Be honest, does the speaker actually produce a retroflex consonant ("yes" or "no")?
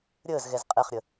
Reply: no